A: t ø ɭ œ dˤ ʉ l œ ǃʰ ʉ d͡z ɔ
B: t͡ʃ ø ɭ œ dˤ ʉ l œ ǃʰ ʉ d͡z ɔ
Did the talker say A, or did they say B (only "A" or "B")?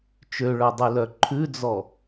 B